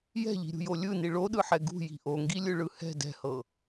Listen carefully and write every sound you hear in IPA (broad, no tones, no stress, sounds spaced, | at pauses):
j ɛ̤ ʎ i̤ ɾʲ ṳ j o lʲ ɯ n i ɭ o ɗ ɯ ħ ɛ ɡ ṳ j i̤ ʔ o ŋ ɡ i lʲ ɯ ɭ ɯ h ɛ̤ d ɛ̤ h ɤ